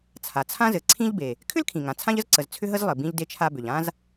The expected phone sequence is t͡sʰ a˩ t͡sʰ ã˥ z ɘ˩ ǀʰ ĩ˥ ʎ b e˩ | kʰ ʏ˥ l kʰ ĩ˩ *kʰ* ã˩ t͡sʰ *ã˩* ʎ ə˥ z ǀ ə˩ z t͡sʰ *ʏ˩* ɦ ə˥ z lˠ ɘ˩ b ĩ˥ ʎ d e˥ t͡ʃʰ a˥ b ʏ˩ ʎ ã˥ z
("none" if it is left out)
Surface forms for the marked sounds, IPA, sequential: ŋ, ã˥, ʏ˥

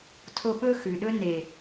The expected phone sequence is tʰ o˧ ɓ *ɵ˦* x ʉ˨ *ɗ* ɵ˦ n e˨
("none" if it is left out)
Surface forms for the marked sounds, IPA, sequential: ɵ˦, ɗ

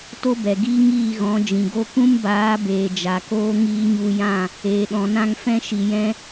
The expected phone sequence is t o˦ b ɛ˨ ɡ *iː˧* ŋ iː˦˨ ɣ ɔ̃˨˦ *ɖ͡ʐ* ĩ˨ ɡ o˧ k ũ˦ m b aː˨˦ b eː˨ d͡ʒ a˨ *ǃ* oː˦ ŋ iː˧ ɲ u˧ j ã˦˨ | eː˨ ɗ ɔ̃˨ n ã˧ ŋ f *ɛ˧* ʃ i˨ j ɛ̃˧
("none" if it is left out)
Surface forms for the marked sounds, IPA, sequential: iː˦, d͡ʒ, k, ɛ̃˧

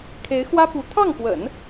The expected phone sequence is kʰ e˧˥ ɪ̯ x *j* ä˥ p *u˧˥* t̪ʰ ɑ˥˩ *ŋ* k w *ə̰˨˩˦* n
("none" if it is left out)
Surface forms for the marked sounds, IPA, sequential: w, u˧˥, ŋ, ə̰˨˩˦

